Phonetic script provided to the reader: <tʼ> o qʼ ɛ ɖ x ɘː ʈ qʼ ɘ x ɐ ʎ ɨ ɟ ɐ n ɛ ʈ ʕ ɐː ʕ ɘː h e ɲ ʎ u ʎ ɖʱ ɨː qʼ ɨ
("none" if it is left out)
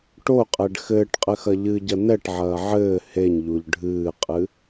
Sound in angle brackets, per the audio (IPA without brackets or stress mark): ʈ